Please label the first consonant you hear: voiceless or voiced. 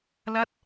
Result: voiced